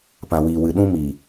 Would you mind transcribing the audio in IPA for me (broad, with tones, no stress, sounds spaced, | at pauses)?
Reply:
p ã˨ w iː˨ w ɨ˨ ɗ ũ˦ m iː˨